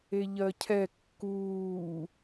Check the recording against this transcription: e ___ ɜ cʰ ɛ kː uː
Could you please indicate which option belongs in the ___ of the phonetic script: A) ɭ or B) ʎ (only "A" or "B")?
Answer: B